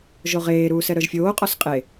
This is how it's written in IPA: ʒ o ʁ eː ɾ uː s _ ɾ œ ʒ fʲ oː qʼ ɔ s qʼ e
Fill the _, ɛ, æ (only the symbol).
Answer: ɛ